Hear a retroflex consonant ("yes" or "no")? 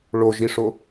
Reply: yes